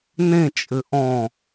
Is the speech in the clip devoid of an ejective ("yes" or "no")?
no